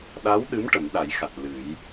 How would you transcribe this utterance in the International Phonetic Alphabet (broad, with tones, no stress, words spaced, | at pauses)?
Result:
ɗa˧˥wɗɨ˧˥m ʈə˨˩˦mɗa˨˩˦jxa˨˩t̚ lɨ˨˩˦j